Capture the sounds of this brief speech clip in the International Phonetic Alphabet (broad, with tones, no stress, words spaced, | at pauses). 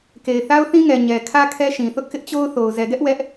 ke˨ɪ̯θa˦ʊ̯θĩ˦ŋɛ˨ ɲɛ˨kʰä˦ kʰɛ˦ʃĩ˨θʊ˦ʔ kɪ˦ʔt͡ɕo˦ʊ̯θo˨ʊ̯ zɛ˨ɡɛ˦ʔ wɛ˦ʔ